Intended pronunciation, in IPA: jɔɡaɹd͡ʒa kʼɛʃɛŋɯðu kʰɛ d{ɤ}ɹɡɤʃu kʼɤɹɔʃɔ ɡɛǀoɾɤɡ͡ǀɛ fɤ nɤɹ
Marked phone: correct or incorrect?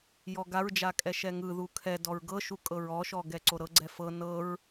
incorrect